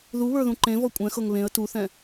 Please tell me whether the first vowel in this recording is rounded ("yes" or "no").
yes